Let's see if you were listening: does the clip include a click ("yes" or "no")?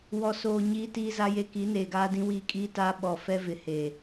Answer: no